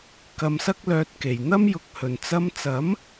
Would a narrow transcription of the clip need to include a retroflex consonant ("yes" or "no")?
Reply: no